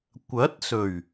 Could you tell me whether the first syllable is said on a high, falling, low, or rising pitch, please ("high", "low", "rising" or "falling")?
rising